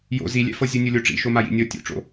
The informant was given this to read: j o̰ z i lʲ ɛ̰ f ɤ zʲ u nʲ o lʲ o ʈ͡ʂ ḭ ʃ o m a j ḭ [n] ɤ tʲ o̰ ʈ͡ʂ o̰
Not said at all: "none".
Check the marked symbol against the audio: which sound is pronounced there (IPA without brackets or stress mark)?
nʲ